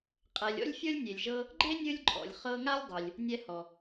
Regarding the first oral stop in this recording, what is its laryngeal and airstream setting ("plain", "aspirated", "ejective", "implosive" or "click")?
ejective